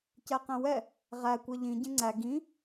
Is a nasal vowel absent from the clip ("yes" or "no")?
no